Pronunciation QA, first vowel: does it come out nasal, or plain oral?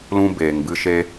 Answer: nasal